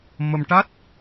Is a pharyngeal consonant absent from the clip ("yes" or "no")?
yes